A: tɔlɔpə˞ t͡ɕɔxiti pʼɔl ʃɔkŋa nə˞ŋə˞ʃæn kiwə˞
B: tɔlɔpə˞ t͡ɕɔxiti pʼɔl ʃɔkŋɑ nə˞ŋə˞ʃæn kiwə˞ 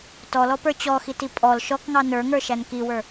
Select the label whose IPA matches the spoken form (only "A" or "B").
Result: B